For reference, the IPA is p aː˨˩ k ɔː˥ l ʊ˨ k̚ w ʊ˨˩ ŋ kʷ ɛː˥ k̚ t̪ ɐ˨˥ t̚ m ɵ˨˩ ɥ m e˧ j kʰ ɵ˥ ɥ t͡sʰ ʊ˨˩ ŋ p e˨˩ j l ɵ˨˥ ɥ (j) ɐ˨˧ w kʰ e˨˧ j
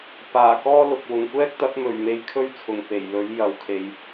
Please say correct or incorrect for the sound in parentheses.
correct